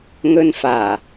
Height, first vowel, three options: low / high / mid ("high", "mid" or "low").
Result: mid